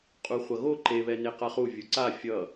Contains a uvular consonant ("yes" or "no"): yes